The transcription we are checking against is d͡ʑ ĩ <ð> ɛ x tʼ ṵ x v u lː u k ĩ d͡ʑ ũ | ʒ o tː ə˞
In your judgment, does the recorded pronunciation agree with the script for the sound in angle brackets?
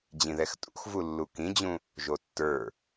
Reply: yes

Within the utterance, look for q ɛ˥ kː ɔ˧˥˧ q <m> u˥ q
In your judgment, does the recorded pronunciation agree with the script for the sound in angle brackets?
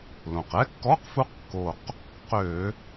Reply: no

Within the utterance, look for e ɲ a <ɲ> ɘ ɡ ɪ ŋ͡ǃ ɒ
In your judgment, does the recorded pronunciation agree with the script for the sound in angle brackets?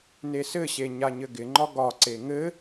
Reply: yes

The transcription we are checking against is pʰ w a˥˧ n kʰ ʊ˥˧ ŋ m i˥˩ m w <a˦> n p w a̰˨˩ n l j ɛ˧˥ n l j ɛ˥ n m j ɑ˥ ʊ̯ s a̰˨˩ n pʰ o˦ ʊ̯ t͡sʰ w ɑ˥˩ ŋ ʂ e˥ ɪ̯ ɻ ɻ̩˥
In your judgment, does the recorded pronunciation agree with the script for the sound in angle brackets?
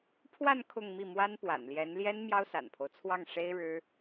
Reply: no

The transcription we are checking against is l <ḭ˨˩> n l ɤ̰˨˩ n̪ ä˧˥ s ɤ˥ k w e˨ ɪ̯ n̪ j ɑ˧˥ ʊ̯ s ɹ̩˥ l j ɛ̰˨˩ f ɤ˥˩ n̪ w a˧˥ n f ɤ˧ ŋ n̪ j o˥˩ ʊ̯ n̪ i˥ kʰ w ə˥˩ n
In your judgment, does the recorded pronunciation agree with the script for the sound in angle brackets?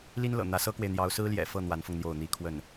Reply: no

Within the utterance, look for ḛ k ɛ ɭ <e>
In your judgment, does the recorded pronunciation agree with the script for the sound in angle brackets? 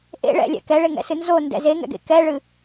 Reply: no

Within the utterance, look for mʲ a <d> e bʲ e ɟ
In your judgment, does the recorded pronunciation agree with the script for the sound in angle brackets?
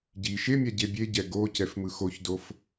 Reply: no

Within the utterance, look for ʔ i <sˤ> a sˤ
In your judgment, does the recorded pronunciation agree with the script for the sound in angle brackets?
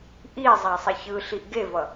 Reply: no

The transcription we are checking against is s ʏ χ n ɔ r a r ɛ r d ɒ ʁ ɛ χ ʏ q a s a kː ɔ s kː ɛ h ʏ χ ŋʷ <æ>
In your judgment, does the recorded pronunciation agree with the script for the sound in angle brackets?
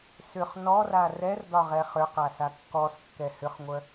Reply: no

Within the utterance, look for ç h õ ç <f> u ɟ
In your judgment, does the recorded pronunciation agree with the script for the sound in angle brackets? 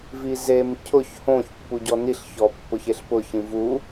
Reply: no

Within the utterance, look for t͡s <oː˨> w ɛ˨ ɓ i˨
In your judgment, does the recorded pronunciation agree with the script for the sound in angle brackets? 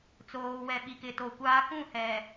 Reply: yes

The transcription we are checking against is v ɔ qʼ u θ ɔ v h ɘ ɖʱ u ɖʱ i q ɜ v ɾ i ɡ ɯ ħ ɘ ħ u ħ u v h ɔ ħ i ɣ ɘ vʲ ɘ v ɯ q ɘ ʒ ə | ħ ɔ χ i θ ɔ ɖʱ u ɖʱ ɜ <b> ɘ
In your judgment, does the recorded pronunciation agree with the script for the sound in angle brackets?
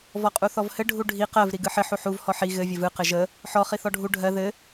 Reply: no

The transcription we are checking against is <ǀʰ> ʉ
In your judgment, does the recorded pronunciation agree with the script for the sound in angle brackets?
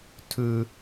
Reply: no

